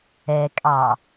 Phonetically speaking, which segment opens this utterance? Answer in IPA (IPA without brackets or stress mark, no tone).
ɛ